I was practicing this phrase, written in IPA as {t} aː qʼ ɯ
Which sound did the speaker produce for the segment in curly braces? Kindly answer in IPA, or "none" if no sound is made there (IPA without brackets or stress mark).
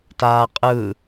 t